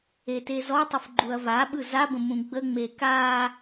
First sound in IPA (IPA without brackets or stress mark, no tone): e